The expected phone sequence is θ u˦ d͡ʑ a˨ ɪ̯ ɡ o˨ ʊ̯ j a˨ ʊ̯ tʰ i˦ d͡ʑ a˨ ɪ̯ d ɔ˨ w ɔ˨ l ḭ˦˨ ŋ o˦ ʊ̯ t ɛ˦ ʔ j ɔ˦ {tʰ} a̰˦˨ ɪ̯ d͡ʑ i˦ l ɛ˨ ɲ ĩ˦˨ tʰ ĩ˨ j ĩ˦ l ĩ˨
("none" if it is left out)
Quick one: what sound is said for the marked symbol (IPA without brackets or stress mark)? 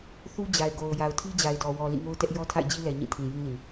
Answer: tʰ